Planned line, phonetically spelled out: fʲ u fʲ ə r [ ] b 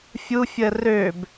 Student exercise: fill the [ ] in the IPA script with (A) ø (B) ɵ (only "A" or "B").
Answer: A